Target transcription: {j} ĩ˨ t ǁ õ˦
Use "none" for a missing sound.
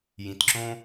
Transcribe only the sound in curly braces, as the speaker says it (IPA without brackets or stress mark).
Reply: j